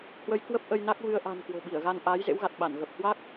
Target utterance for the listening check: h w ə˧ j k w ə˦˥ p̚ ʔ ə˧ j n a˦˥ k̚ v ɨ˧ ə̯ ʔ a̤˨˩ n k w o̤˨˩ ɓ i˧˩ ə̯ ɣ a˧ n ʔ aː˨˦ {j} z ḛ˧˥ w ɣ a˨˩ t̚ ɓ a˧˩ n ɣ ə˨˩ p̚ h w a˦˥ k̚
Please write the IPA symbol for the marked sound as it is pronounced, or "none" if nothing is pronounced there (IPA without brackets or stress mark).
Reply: j